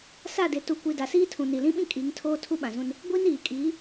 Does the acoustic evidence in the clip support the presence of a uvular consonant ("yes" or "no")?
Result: no